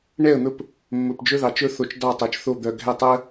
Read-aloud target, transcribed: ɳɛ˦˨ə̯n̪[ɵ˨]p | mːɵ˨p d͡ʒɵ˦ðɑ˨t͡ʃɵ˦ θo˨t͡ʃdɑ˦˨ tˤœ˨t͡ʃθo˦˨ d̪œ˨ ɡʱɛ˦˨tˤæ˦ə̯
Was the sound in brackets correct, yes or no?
no